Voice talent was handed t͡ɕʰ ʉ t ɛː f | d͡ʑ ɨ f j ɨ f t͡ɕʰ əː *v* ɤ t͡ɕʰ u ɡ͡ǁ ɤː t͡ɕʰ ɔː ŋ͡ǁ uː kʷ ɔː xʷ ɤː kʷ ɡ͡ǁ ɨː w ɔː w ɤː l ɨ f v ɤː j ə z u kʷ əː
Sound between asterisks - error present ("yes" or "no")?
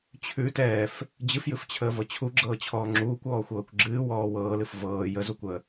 no